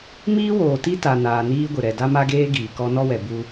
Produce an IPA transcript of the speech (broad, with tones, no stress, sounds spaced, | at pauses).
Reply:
m iː˦ w oː˨ t i˦ t a˨ n aː˨ n iː˦ ɡʷ ɪ˨ ɾ ɛ˨ d a˦ m a˦ ɡ eː˦ ɡ iː˨ k ɔ˦ n ɔ˦ w ɛ˨ b u˦